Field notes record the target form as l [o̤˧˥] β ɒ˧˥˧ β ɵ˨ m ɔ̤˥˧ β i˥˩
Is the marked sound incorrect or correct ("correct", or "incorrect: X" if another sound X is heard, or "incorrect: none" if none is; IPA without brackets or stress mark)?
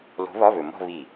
correct